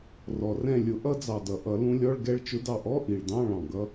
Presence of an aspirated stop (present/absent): absent